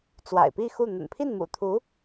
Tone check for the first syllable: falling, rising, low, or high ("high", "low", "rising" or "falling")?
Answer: low